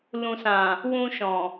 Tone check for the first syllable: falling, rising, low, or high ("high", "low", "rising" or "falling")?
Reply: low